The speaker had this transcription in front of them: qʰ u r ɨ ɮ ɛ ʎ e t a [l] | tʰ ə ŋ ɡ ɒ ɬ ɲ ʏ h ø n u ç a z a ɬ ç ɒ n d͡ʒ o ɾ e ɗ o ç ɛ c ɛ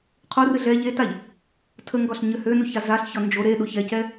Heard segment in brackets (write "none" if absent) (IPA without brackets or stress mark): ʎ